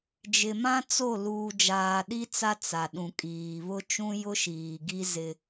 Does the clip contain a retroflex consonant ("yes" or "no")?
no